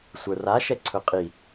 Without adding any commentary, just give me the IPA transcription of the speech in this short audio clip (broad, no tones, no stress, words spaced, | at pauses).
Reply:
sʷə˞ra ʃɛǀʰɵqʼi